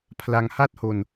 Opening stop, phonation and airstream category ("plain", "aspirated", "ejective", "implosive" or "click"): aspirated